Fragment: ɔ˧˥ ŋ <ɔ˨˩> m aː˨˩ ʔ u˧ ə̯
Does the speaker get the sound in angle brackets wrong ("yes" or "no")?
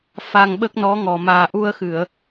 no